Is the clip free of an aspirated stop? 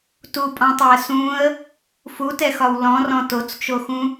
yes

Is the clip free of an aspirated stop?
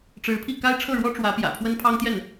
no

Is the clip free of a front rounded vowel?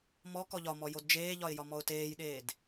yes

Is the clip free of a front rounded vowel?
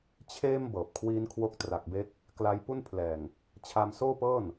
yes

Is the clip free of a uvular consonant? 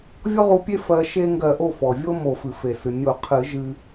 no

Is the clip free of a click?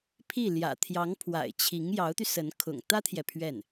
yes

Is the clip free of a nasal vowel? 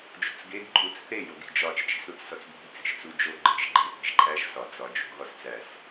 yes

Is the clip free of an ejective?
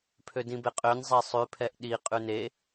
no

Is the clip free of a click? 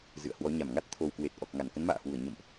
yes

